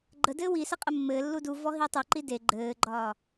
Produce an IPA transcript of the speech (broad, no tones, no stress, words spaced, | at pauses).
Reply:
ɡ͡ǃə dɘːwi sɘqʼɘmːɘː lːuduvɔ ɦitˤuǃi de ɡ͡ǃɘːɡ͡ǃɒː